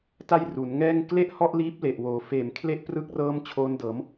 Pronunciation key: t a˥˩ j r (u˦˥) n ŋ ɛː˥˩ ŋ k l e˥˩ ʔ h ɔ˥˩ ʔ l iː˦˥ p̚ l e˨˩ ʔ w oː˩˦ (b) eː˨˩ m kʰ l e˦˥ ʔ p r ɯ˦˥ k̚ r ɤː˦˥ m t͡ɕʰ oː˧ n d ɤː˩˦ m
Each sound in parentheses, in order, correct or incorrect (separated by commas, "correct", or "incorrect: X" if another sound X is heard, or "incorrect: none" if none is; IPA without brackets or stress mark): incorrect: u˩˦, incorrect: f